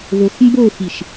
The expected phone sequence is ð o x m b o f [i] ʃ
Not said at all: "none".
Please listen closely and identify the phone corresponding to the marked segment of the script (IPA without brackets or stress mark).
i